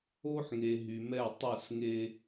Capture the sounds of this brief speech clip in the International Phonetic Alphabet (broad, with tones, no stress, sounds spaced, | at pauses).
o˦ ħ ŋ e˨ ɦ y˨ m ɛ˦˨ tˤ u˦˨ s ŋ e˦